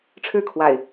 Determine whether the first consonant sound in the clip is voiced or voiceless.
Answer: voiceless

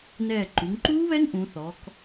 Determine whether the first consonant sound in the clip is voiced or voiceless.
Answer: voiced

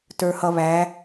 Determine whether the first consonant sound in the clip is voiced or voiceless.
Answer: voiceless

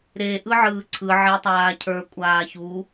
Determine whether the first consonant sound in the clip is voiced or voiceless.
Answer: voiced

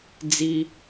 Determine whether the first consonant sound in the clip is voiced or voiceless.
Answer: voiced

